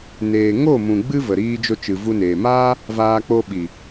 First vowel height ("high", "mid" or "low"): mid